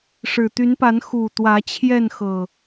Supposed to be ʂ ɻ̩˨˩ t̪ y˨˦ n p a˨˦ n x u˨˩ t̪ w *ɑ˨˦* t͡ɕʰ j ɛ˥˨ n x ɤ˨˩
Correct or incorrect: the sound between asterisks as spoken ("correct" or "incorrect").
incorrect